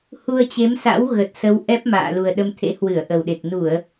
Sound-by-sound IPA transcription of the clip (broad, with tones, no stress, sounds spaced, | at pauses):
h u˧ ə̯ t͡ɕ e˨˦ m s a̰˧˥ w ɣ ə˨˩ t̚ s ə˨˦ w ʔ ɛ˦˥ p̚ m a̰ː˧˨ l u˨˩ ə̯ ɗ ə˧ m t̪ʰ ḛ˧˥ h w ɨ˧˩ ə̯ ʔ ə˨˩ w ɗ e˨˩ k̚ n u˧˩˨ ə̯